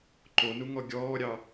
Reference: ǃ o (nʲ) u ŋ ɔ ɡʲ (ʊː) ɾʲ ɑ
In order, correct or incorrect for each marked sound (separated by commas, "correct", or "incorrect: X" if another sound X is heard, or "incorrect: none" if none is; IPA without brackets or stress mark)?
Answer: incorrect: n, incorrect: ɔː